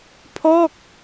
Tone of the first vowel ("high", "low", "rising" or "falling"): falling